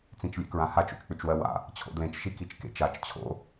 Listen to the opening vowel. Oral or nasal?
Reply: nasal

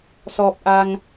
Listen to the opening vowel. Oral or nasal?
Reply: oral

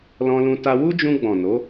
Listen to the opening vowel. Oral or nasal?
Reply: nasal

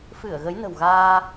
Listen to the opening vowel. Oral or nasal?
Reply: oral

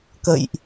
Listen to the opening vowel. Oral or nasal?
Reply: oral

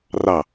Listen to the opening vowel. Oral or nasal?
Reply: oral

